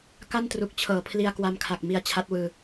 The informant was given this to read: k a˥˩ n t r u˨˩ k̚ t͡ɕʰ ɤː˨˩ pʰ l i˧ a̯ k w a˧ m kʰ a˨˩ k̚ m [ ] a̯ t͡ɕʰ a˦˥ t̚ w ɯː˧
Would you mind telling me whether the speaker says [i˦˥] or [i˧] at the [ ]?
i˧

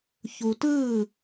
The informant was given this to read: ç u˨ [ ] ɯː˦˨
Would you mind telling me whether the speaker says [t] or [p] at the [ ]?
t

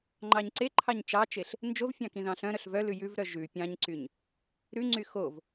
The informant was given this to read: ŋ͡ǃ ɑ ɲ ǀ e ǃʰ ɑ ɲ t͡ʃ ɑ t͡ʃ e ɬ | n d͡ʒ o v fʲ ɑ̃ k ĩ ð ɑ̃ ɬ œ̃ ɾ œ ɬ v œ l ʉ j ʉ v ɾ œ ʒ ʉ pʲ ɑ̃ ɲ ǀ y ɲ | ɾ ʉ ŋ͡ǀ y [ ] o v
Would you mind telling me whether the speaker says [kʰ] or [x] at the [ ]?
x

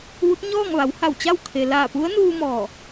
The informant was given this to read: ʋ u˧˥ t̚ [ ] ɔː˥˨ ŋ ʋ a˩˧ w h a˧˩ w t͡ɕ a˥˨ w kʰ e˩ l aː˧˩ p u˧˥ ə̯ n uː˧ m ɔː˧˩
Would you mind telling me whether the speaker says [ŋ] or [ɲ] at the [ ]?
ɲ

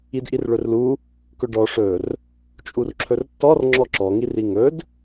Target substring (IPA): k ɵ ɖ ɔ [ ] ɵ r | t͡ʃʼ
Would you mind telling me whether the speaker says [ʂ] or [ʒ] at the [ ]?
ʂ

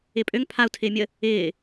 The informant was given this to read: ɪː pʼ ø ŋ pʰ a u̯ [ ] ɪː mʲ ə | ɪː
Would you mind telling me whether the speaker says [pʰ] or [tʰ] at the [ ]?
tʰ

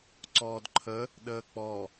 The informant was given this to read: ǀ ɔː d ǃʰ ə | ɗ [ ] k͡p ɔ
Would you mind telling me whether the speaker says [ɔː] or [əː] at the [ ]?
əː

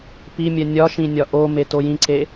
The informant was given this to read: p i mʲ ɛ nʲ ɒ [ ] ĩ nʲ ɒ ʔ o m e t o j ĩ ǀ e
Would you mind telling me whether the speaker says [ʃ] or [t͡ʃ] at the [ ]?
ʃ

